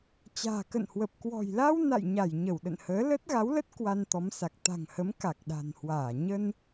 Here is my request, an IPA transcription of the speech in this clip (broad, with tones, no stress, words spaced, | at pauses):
t͡ɕa̤ː˨˩kə̰˧˨nhwə˨˩p̚ kwɔ̤˨˩jla˧w na̰˧˨jɲa˧˩j ɲə˧˩wɗə̰˧˨nhəː˨˦ lə˦˥t̚ɣa˨˦wlə˦˥t̚ kwa˧nt̪ɔ˨˦msa˨˩k̚ t̪a̤˨˩ŋ hə˨˦m ka˨˩k̚ɗa̤˨˩nhwaː˧˩ ɲə˧n